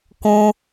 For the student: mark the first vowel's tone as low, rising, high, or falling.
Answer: high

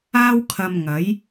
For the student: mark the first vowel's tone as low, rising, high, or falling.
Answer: high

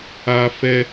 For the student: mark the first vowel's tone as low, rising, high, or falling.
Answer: high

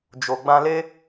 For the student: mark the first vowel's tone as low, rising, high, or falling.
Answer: low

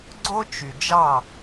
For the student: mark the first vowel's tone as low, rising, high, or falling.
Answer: high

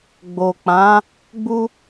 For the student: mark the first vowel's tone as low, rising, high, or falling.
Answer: low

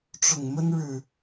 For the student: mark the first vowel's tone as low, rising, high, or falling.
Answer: low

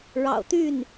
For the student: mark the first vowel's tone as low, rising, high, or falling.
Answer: low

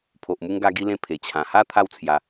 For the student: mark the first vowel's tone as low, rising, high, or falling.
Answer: low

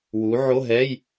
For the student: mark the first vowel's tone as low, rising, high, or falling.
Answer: rising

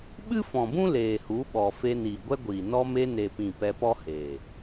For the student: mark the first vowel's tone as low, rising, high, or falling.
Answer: high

